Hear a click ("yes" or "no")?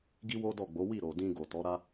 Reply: no